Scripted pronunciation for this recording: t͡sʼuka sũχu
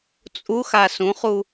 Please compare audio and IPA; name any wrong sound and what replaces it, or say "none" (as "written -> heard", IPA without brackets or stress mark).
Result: k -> x